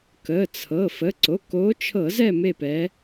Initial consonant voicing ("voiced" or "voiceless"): voiceless